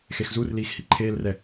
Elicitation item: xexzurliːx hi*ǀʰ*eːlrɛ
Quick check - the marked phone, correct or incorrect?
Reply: incorrect